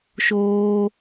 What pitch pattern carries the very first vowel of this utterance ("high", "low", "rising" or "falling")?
high